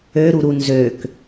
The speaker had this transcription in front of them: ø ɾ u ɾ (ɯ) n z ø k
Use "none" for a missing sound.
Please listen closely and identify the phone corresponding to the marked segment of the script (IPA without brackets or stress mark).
u